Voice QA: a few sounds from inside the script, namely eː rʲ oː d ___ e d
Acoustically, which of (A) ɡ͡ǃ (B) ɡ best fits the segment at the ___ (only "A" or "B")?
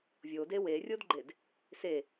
A